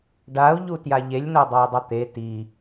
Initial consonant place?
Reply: retroflex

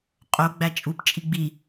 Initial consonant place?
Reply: uvular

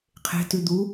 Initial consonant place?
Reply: uvular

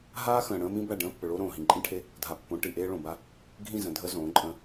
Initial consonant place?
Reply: glottal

